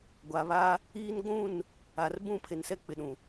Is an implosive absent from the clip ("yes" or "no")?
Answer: no